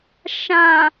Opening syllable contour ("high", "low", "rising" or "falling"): low